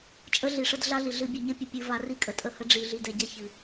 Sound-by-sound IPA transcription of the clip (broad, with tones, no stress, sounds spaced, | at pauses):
t͡ʃʼ ə˦ ɮ i˨ ʂ ə˦ d ɮ a˦ ɮ i˨ ɮ ɨ˨ bʲ ɘ˨ ɲ ɘ˦ pʲ ə˨ pʲ ɨ˨ v a˨ r i˦ kʼ ə˨ tʼ ə˦˨ h ə˦ ɖ͡ʐ i˨ ɮ i˨ d ɛ˨ ɟ ɛ˦ ç ɨ˨